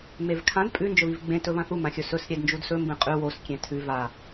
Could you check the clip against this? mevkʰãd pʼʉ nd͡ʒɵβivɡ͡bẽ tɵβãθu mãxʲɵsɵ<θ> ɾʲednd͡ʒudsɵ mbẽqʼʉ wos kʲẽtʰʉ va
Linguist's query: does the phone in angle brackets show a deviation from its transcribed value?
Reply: yes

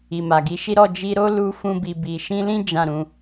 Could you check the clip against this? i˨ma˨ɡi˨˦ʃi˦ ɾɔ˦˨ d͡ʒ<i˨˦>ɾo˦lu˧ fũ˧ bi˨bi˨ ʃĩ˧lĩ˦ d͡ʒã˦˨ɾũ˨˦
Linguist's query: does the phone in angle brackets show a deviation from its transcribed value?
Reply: yes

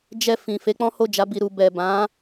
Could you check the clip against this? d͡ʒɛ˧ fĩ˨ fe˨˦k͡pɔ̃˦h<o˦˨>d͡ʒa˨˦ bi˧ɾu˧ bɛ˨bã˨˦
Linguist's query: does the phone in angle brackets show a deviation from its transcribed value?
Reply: no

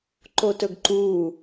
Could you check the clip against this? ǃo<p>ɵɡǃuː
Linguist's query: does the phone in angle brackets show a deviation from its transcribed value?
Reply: yes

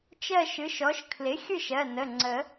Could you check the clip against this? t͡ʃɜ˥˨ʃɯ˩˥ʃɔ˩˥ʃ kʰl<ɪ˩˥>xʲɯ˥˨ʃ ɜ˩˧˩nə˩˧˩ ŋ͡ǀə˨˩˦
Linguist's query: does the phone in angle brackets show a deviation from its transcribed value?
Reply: no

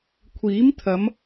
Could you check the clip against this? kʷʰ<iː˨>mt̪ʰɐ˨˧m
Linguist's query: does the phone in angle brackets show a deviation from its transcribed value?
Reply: yes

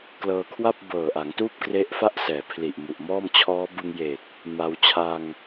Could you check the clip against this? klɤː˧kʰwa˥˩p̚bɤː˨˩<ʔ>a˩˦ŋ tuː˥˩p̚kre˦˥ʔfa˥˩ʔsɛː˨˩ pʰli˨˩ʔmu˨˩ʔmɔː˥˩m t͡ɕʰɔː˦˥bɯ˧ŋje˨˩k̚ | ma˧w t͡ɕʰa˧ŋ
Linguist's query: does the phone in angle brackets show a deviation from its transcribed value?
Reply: no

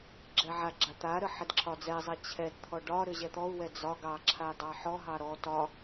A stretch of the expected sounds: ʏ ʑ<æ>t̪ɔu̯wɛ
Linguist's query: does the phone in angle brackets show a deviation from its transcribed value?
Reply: yes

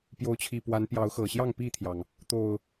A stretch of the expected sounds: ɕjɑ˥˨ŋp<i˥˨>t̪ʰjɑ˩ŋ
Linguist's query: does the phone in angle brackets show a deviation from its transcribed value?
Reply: no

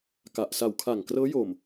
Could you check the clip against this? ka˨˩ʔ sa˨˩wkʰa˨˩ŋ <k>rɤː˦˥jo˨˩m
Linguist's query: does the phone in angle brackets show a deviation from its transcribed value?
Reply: no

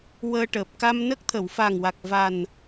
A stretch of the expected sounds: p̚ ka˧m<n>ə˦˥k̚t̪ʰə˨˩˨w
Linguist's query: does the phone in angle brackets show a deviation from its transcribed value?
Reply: no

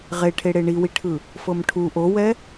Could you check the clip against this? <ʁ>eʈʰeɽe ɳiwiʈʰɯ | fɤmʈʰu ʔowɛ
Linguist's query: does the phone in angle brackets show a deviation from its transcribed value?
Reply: no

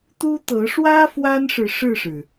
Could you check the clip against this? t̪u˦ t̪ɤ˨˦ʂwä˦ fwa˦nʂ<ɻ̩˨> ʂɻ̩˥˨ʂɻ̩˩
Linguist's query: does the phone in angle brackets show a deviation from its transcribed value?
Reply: no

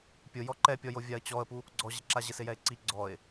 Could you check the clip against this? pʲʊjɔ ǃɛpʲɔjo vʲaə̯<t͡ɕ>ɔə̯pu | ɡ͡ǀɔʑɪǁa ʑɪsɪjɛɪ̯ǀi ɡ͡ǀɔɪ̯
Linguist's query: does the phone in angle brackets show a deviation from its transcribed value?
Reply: no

